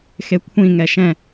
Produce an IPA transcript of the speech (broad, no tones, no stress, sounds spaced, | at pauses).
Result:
x e kʷʰ ĩ ŋ ɛ ʃ ɛ̃